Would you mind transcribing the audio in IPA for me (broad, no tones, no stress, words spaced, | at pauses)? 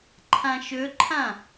ǃʰãʃɵǃʰã